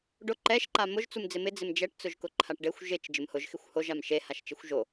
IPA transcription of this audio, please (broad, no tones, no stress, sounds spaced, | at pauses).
ɖ ʊ ǃ ɛ ʃ ǃ a m ʊ ʒ t͡s u m d͡z ɪ m ɪ d͡z ɪ m d͡ʒ ɛ ʈ t͡s ʊ ʒ k ʊ ǃʰ a ʈ ɖ e xʷ ʒ ɪ t͡ʃ d͡ʒ ɪ m h ʊ ʒ x ɪ xʷ h o ʒ a m ʃ e h a ʃ t͡ʃ ɪ xʷ ʒ o